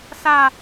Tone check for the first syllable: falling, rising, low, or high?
high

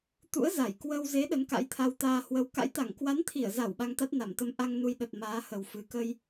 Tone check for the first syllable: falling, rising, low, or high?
rising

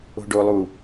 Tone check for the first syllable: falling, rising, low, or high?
low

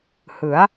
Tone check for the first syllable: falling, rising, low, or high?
rising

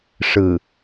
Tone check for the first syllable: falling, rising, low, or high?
low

